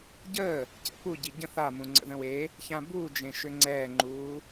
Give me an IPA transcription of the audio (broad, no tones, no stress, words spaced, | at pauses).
ɟəː | cɛ̰pu ɟiɟə̃ θamũŋ͡ǀə̰ ðə̃we | çãbuːd͡ʒẽ ʃʏŋ͡ǀɛːŋ͡ǃuː